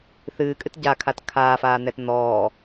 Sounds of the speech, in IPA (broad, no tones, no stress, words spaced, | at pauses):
θɨːkʼɨt ɟakʰat kʰaːfaːn̪ɛt n̪ɔː